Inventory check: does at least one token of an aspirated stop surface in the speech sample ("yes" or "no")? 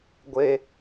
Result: no